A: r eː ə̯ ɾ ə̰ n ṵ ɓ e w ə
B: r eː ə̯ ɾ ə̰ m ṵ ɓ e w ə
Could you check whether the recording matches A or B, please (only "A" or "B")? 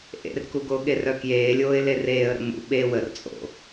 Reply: B